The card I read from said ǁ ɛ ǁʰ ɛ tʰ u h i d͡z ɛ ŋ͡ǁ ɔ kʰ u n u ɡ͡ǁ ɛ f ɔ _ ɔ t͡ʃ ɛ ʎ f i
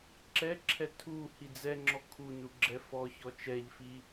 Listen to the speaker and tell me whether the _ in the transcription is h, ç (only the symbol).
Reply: ç